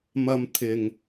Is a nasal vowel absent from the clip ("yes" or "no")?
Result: yes